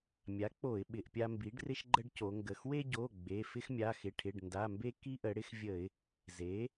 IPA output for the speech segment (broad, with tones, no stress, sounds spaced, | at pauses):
mʲ a˩˥ k͡p o˧˩˧ ɪ̯ ɓ ɪ˩˧˩ ʔ pʲ a˦ m b i˩˥ ɖ r ɪ˦ ʃ ɡ͡ǃ ə˦ ɖ c o˩˧ ŋ ɡ ə˩˧˩ x w e˦ ɟ o˩˧˩ ɡ͡b e˩˧˩ f ɪ˦ x mʲ a˩˧˩ x ɪ˩˧˩ ʈʰ ɪ˩˧˩ ɖ n d a˩˧˩ m b e˦ k i˦ ʔ ə˩˧ ɽ ɪ˦ x vʲ ə˧˩˧ ɪ̯ | z e˩˥